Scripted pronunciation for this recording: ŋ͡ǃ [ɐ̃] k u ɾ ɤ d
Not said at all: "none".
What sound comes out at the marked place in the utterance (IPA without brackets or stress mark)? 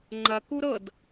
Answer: ɐ